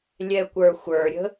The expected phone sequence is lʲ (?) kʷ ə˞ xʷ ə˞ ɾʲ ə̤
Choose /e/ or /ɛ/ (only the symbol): ɛ